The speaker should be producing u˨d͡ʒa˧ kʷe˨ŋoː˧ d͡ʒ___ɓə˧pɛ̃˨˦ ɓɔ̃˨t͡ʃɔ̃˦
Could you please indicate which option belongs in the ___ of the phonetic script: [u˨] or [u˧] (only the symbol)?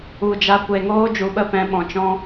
u˨